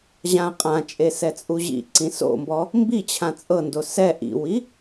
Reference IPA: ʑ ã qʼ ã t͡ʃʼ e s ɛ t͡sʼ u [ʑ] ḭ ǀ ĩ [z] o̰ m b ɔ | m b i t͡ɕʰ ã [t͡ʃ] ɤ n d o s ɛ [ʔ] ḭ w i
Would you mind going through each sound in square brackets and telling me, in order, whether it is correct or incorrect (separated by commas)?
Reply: correct, incorrect, incorrect, correct